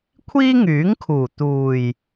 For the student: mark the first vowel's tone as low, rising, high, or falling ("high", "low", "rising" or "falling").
high